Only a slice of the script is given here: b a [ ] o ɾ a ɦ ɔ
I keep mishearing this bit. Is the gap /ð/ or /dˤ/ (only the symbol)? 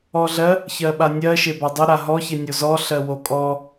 dˤ